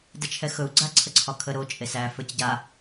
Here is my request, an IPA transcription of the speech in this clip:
d ə t͡ʃʰ ɛ x ɵ u̯ ɡ͡ǀ a ǀʰ ə ǀʰ ɒ kʰ ə ɾ o t͡ʃʼ e s æ f ə˞ c ɟ a

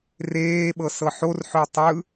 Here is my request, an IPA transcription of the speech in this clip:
r eː ɓ ɤ s ɤ ħ o r ħ ʏː tˤ ɯ

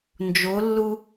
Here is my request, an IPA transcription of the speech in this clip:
n d͡ʒ o lː u

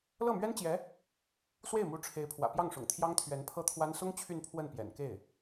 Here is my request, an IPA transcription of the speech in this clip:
l ɤ˥˩ m ɥ ɛ˥ n t͡ɕ j ɛ˧˥ | s w e˥˩ ɪ̯ m u˧˥ ʈ͡ʂʰ e˧˥ ɪ̯ pʰ w ä̰˨˩ p j ɑ˥˩ ŋ ʂ ʊ̰˨˩ ŋ t̪ʰ j ɑ˥ ŋ t̪ʰ ɥ ɛ˧˥ n pʰ ɤ˥ t̪ʰ w a˥ n s ʊ˥ ŋ t͡ɕʰ y˥˧ n pʰ w ə˥˩ n p j ɛ̰˨˩ n k e˥˩ ɪ̯

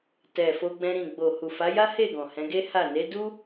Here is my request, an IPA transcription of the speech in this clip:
t ɛ˨ f o˧ ɡ͡b ɛ̃˧ ɾ ĩ˨ ɡ͡b o˨ h u˨ f a˨˦ j a˦ h e˦˨ ɡ ɔ̃˨ h ɛ̃˨˦ ɡ e˦ h a˦˨ n e˨˦ d u˦

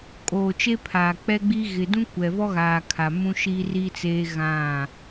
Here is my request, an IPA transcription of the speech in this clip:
kʼ oː˨ t͡ʃ e˦ pʰ aː˨ k͡p ɛ˦ ɡ͡b i˦ ɣ ɪ˨ d ũ˦ kʷ ɛ˨ v ɔ˦ ɣ aː˨ kʰ a˨ m ũ˦ ʃ iː˦ r i˦ t͡s eː˦ ɣ ã˦˨

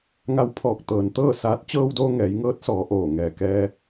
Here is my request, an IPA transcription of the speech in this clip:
ŋ a˧ w pʰ ɔː˧˩ k̚ t̪ ɤː˩ n t̪ ɤː˥˨ s aː˧˥ t̚ t͡ɕ ɤː˧ w d oː˧ ŋ ɛː˩˧ j ŋ ɤː˧˥ t̚ s ɔː˩˧ ʔ oː˧˩ ŋ ɛː˧˩ k ɛː˧

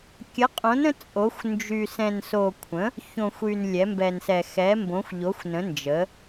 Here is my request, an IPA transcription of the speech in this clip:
kʲ ə˨˥ qʼ õ˨˥ n ə̃˨˥ t͡sʼ o˨˥ xʷ n d͡ʒ y˧ s ɛ̃˧ n s o˧ kʷʰ ə̃˨˥ | ç õ˧ xʷ y˧ n lʲ ɛ˨˥ m b ɛ˧ n s ɛ˧ x ɛ˨˥ m b õ˨˥ xʷ ʎ o˨˥ xʷ n ə̃˨˥ n d͡ʒ ə˨˥

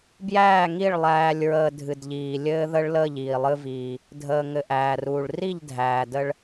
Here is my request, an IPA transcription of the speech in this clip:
b j æː˦˨ ŋ i˦˨ ɭ lˠ æː˨ lʲ ɹ əː˨ dʱ ɨ˨ d ʎ iː˨ lʲ ɘː˦ ð ə˦ ɭ l əː˦˨ ʎ iː˨ lˠ ɨ˦ v iː˦ | dʱ əː˨ ŋ ɘ˨ ʔ æː˨ r uː˨ ɭ r i˦˨ ʎ dʱ æː˨ d ə˦ ɭ

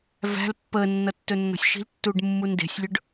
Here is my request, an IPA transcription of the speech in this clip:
v æ̤ l pː əː nː ʌ tː ɵ nː ɔ̤ sʲ ʃ i̤ l tː uː ɖ mː u n d e̤ sʲ lʲ ɵ ɖ

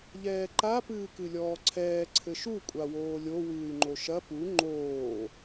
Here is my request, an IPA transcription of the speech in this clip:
ʎ ɛː ǃ a p ɨː k ɨ lʲ ɔː ǀʰ ɛː ǀʰ ɘ ʃ u kʷʼ a w oː lʲ o w ɨː y̯ ŋ͡ǃ o ʃ ɐ p u ŋ͡ǃ oː

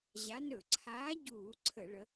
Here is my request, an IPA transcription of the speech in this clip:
ʑ a˨˦ n ɵ˧˩˧ ǀʰ aː˨˦ ɟ uː˧˩˧ ǀʰ ə˧˩˧ ɭ ə˨˦

